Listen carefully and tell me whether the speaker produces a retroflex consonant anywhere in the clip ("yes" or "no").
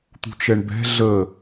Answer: yes